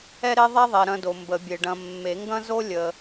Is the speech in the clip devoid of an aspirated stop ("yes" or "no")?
yes